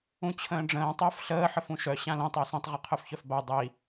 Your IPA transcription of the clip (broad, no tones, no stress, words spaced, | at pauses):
ũt͡ɕʰə̃ːɖ͡ʐə̃ː tˤəːfɬəː ħəfũʃœ ɕãlĩtˤ œsĩtˤ ʁɯqʰœfçœfba dˤi